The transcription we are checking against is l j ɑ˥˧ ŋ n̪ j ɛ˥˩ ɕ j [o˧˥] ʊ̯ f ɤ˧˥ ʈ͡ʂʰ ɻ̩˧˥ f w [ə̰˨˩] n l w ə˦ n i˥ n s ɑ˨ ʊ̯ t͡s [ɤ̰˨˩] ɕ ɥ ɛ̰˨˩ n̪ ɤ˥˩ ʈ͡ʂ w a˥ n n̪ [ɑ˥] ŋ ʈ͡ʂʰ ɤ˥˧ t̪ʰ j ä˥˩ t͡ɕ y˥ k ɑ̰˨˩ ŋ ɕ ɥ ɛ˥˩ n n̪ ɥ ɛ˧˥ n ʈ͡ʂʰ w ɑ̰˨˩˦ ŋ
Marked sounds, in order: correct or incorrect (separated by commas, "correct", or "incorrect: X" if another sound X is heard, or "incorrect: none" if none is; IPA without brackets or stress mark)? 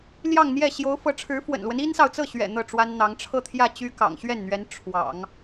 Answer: correct, correct, incorrect: ɤ˥˩, incorrect: ɑ˧˥